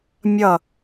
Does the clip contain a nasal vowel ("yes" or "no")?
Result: no